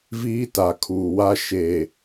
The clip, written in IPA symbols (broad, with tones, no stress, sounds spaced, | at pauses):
v iː˦ t a˨ kʰ uː˨ w a˦ ʃ e˨